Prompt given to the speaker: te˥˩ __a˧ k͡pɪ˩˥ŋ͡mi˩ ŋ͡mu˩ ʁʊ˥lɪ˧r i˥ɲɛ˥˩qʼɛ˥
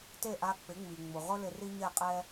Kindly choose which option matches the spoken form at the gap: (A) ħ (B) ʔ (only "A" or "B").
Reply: B